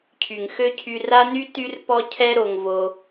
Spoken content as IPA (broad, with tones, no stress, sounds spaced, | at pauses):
cʰ y˨ ŋ x ø˦ cʰ y˧ r a˦ n y˦ t y˦ r p ɔ˦ cʰ ɛ˦ ɾ o˧ ŋ v o˧